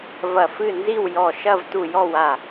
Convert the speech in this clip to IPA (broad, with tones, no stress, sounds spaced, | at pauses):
v ɐ˧˩ f ɨ˥˨ n z i˥˨ w j ɔ˧˩ ʃ ɐ˥˨ v t u˧˩ j ɔ˥˨ w a˧˩